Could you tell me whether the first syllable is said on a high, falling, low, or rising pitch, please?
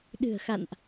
low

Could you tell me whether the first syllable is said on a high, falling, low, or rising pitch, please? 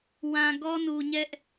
low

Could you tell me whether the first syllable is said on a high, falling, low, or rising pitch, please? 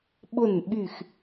falling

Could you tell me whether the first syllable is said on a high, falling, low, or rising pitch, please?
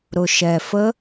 low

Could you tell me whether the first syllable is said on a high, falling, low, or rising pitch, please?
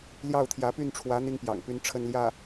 falling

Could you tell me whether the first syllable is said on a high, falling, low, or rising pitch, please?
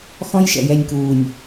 high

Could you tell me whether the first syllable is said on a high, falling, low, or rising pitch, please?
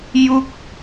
falling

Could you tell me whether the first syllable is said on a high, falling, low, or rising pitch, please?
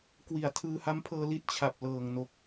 low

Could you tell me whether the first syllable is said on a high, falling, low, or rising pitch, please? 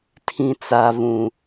low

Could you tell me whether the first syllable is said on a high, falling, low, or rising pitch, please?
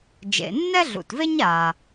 low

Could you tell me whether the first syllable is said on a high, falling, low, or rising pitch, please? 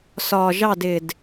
low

